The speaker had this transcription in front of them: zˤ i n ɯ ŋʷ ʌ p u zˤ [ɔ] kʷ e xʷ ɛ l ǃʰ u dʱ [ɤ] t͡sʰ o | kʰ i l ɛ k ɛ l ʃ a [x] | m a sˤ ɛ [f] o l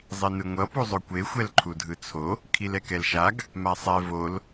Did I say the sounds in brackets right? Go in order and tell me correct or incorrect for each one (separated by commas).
incorrect, incorrect, incorrect, incorrect